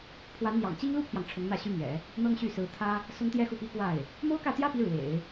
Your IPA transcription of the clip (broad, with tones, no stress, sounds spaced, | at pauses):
pʰ w a˧˥ n n̪ j ɑ̰˨˩ ŋ t͡ɕ i˥ ŋ l u˥ pʰ j ɑ˨ ŋ ʈ͡ʂʰ ʊ˧˥ ŋ n̪ ä˥˩ ɕ y˥ m ɥ ɛ̰˨˩˦ | n̪ ɤ˥ ŋ ɕ y˥˩ s ɹ̩˧˥ t̪ʰ ä˥ | s ʊ˥ ŋ t̪ j ɛ˥ x u˥˩ p i˥ k w a˥˩ ɪ̯ | m o˥ ʊ̯ k ä˥˩ t̪ j ä˥ p i˧˥ ɻ w ḛ˨˩˦ ɪ̯